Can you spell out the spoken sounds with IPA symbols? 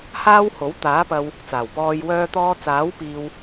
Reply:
h aː˥ w h o˨˥ w t̪ aː˨˥ p ɐ˧ w | t͡s aː˨˩ w p ɔː˧ j w œː˧ t̪ ɔː˧ t͡s aː˨˥ w p iː˧ w

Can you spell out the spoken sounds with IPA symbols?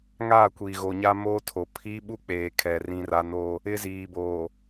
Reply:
ŋ aː˦˨ kʷ iː˨ ɣ o˨ ɲ a˦ m oː˦ tʰ o˨ pʰ iː˦ ɓ u˦ k͡p eː˨ kʰ ɛ˨ r ĩ˦ r a˦ n o˦ | ɪ˦ z iː˨ b oː˨

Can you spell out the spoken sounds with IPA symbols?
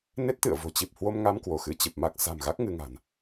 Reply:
n e˦˥ t̚ t̪ ɨ̰˧˨ ə̯ v o̤˨˩ t͡ɕ i˨˩ p̚ h w o˧ m ŋ a˧ m k w o˧˩ x ɨ˧ t͡ɕ ɨ˨˩ p̚ m a˦˥ k̚ s a̤˨˩ m ɣ a˦˥ k̚ ŋ ɨ˧ ŋ a̤˨˩ n

